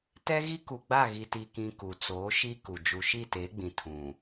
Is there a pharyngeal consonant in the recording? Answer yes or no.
no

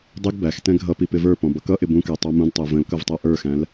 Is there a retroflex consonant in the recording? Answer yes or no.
no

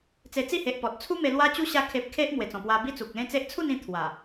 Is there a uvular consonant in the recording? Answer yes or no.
no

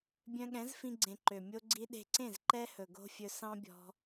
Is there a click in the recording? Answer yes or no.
yes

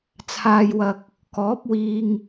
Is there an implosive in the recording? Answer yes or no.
no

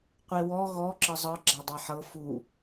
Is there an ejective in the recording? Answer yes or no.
no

